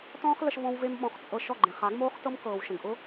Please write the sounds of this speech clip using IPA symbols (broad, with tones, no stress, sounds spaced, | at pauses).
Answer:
t ɔ̃ː˦ χ l ə˧ ʃ v ɔ̃˧ w v e˦ m ɓ ɔ̃˧ χ t͡sʼ ɤ˧ ʃ ɔ˦˨ ɡ͡ǃ ẽ˨ χ a˨˦ ɡ m oː˦ χ t ɤ˦ m k ɤː˨ w ʃ ə̃˨ ɡ ʔ ʊ˦